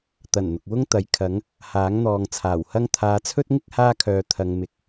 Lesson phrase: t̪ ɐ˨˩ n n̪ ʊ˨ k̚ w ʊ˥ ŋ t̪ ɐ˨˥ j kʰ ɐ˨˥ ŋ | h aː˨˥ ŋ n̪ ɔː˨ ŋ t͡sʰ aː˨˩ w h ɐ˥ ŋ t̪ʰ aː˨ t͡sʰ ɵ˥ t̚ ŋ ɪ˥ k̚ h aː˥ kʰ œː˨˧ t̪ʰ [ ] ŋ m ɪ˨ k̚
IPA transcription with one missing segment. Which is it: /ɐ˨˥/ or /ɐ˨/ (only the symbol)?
ɐ˨